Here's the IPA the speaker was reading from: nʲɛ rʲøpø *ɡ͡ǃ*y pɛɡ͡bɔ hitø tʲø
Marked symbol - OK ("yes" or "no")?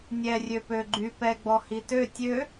yes